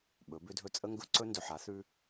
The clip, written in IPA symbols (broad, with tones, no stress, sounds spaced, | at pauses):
ɓ ɵ˨˦ b ʏ˦ dʱ ɵ˦ t͡sʼ ə˦ ŋ ɡ ɵ˦ ǀ ɵ˦ n d ɵ˨ ħ a˨˦ θ ʉ˦